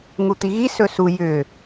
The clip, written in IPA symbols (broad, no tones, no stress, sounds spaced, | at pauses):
ŋ u t̪ i ɣ i s ɵ s u j ʏ